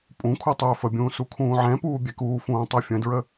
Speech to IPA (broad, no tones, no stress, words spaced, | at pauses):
pʼũ kʰutˤøːfəbʲũː sukʰũːʕɛ̃puː bʲɛkuːfũː tˤøfʲə̃dɹə